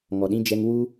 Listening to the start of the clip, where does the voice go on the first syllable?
low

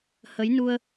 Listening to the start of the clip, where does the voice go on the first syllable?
rising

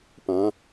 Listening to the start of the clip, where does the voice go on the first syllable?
rising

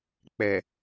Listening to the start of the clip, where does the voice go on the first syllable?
low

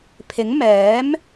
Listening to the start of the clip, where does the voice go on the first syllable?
rising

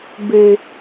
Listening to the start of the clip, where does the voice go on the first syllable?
low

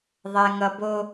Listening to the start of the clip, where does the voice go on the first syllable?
high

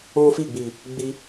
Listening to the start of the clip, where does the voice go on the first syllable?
high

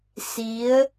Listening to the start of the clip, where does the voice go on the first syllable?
rising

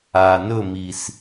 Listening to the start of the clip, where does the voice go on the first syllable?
low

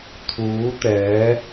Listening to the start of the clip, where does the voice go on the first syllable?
rising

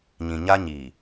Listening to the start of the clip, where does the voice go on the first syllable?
low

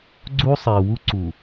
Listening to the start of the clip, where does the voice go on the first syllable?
high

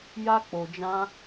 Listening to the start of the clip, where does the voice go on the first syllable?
high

